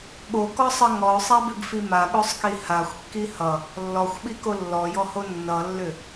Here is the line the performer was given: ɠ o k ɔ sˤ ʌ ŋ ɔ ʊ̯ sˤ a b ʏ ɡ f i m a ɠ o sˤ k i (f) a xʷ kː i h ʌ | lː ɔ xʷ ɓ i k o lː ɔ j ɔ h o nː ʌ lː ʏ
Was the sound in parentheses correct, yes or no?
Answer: no